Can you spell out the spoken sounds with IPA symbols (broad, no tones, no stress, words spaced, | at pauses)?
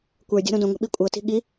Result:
kʷə˞ dʲɔ̤ɾõdõŋʷɛ̤ ɓikʷʼɤti̤ ɠi